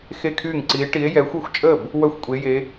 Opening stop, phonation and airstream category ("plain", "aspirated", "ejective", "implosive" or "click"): aspirated